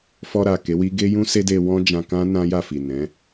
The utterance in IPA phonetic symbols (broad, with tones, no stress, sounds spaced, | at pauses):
f ɔ˧ ɾ a˨ k e˨˦ w i˦ ɡ e˦ j ũ˦ s e˦ d e˧ w ɔ̃˦ d͡ʒ ã˧ k ã˦ n ã˦ j a˦˨ f i˨ n ɛ̃˨˦